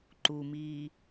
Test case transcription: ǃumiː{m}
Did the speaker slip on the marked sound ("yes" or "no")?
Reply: yes